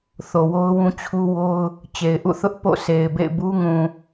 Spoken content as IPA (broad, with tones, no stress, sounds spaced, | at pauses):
θ o˨ w o˦ ʊ̯ w ũ˦ t͡ɕʰ u˦ w o˦ ʊ̯ | t͡ɕ e˨ ɪ̯ ʔ ṵ˦˨ θ ʊ˦ ʔ p o̰˦˨ sʰ e˨ ɪ̯ b ḛ˦˨ ɪ̯ b u˦ ŋ ũ˨